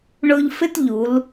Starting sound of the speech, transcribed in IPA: ɳ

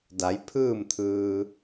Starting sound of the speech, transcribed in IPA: d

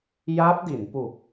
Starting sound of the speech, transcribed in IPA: j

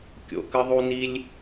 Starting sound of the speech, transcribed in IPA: kʲ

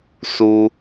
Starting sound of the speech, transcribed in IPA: s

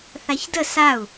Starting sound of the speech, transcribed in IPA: θ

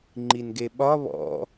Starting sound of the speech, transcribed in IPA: ŋ͡ǃ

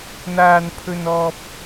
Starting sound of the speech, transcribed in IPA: n̪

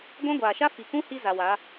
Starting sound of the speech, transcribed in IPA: ɡʷ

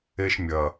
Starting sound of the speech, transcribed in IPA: e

